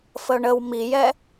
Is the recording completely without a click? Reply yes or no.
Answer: yes